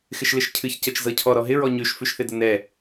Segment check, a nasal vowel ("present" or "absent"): absent